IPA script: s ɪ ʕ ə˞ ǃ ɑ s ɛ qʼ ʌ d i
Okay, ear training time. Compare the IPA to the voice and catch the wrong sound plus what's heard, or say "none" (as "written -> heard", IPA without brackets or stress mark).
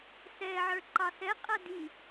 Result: ɪ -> ɛ